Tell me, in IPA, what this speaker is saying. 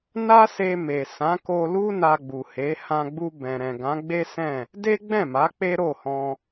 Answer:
na˦se˧me˨ sã˨˦ko˧lu˦ na˧ɡ͡bu˨he˨˦ hã˧ɡ͡bu˧bɛ̃˨ɾɛ̃˨ ɡã˨˦ɡ͡be˦sɛ̃˦˨ | de˦ɡ͡bɛ̃˦˨ma˨˦ k͡pe˦ɾo˦˨hɔ̃˧

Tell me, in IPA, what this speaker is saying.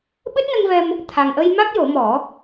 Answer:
ɓɨ˦˥t̚nə˧ŋvɛ˧m | t̪ʰa˨˩ŋʔə˧j ma˦˥k̚jo˨˩˦mɔ˨˩˦

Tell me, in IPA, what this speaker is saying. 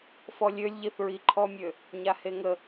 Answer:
fɔlʲølʲ ʎiθɹiǃʰɔmʲø | ɲaheŋə

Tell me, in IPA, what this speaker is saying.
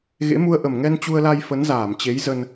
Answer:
ɣḛ˧˥mu˧ə̯ʔə˨˩m ŋɛ˧nt͡ɕu˧ə̯la˧j fə˨˦nzaː˧˩mt͡ɕe˨˦j zə˧n

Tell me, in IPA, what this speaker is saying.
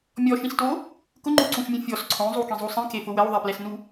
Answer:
mʲɔʃĩsto | kʊŋ͡ǃuǀũʃmʲũ fʲɔs ǀʰõzˤukĩzˤu sˤĩkefʊ wɛwðˤɛplɛsnu

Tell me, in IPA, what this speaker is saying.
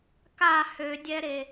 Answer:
ka hødʲɛɾe

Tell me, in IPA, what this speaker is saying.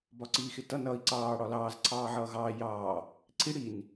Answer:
bɒǀiːxɪtʌ nʌːi̯ǀɑː ɽɒlɑːz ǀʰɑːʕʌːɣɑː jɑː | ǀʰi ɽin

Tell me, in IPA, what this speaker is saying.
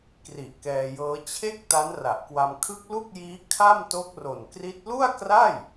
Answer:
kri˨˩ʔkɛː˧jɤː˦˥ t͡ɕʰe˥˩k̚ ta˦˥nra˨˩ʔkwa˧m kʰɯ˦˥k̚lu˥˩k̚jiː˦˥ kʰa˥˩mto˦˥k̚ro˨˩nkri˦˥t̚ lu˥˩a̯kra˥˩j

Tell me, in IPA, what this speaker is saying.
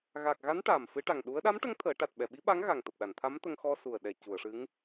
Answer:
ɣa˨˩k̚ɣa˧˥n ʈaː˨˩m fɨ˧˥ʈa˨˩ŋ ɗu˧˥ə̯ ɗa˧˥mʈə˧˥ŋ t̪ʰəː˨˩˦ ʈa˨˩t̚ɓɛ˨˩˨ɓi˧˥ɓa˧˥ŋ ɣa˨˩ŋt̪əː˨˩p̚ɗa˨˩˨nt̪ʰa˧˥m t̪ə˧ŋxɔ˧su˨˩ə̯ɗɛ˨˩ cu˨˩˨ə̯ʂɨ˧˥ŋ

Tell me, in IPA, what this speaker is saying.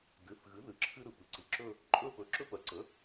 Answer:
dɨ˩˧˩θɣɨ˩˥ ðɨ˩ ǁʰɨ˥ɾɯ˩pɨ˩˥ ǀɨ˩ǁɵ˥˧ | ǃʼɵ˥˧ pɵ˩˧˩ǁɵ˥pɜ˩˧˩ ǀə˩˥

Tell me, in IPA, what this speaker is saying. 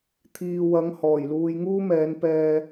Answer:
t̪ʰiː˨wɐ˨˧ŋ hɔː˨˩jluː˧j ŋuː˥mɛː˨˧npɛː˧

